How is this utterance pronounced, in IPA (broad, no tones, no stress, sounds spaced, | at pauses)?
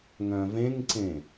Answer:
ŋ œ̃ v ẽ ŋ ǀ ẽ